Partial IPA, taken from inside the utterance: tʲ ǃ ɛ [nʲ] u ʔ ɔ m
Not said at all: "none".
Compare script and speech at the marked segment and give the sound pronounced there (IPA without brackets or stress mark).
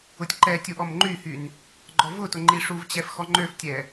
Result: tʲ